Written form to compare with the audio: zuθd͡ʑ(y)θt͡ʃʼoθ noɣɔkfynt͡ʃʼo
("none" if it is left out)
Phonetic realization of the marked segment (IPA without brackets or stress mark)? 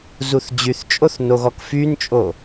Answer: y